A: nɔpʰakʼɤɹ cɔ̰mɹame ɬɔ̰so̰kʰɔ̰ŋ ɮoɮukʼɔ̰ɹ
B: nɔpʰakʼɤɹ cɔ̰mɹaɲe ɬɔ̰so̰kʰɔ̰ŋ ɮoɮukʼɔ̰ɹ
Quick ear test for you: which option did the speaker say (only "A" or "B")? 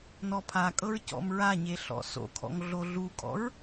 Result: B